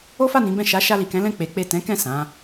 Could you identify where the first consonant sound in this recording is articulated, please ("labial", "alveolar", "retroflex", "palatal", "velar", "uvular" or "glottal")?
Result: labial